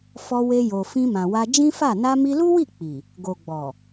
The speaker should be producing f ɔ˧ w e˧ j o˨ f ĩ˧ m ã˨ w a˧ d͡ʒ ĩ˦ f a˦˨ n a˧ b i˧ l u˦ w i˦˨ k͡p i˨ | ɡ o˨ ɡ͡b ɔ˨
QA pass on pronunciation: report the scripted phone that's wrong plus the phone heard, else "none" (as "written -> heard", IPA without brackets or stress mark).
b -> m